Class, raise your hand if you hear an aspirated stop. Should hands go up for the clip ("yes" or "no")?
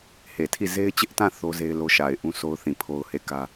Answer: yes